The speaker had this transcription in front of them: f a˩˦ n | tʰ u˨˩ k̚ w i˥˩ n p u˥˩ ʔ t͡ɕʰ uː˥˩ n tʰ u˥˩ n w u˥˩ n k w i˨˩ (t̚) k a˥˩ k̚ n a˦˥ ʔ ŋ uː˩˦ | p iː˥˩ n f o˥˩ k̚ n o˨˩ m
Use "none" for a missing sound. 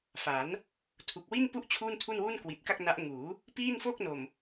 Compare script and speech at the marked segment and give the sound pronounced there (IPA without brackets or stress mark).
t̚